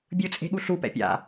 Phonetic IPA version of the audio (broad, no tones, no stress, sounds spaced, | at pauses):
bʲ ɯ t͡sʼ e̤ ɠ u ɬ u p ɛ̰ pʲ a̰